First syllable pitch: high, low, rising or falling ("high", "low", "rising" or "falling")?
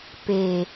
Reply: low